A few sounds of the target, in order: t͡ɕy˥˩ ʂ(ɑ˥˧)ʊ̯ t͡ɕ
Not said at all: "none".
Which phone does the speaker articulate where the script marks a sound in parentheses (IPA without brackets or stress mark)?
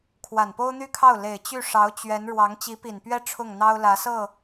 ɑ˧˥